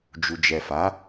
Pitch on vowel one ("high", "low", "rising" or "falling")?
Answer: low